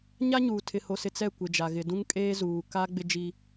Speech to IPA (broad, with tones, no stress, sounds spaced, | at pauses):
ɲ a˦ ɲ uː˨ tʰ ɪ˨ h o˨ s ɪ˨ t͡s ɛ˦˨ kʷ ɪ˨ d͡ʒ a˨ ɣ ɪ˨ d ũ˦ ŋ kʼ eː˦ z uː˨ k a˦ ɡ͡b ɪ˦ d͡ʒ i˦